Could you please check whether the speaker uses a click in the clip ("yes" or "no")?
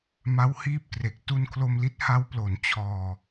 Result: no